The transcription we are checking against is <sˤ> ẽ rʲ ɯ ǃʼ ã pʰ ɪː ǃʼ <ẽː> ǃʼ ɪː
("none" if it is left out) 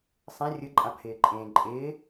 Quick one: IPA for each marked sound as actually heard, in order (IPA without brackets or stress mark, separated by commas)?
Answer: sˤ, ẽː